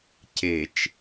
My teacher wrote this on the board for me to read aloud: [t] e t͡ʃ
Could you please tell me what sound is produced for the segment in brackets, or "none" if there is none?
c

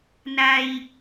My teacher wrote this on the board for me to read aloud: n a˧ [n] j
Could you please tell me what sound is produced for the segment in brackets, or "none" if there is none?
none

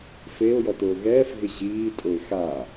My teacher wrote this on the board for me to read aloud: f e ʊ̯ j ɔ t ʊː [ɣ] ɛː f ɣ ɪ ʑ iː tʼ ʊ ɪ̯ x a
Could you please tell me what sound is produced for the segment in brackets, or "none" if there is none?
ɣ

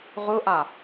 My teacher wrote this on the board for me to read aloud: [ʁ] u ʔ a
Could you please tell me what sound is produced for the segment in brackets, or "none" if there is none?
ʁ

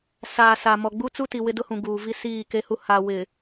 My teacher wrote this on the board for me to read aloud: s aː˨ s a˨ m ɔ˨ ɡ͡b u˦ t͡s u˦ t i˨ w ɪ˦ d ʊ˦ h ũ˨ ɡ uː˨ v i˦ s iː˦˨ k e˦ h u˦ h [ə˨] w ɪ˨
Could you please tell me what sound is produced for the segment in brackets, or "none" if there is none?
a˨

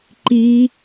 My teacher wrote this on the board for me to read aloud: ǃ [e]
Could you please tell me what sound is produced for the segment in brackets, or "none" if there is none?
i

